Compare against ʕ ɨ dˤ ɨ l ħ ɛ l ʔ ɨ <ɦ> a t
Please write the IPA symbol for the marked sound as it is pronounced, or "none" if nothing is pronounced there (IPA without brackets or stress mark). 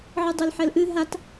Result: ɦ